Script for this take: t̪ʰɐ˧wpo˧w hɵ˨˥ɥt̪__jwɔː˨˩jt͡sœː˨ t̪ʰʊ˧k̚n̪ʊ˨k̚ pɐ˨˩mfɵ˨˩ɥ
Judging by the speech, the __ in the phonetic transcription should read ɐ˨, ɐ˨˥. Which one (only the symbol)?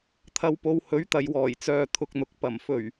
ɐ˨